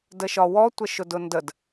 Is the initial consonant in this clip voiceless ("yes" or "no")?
no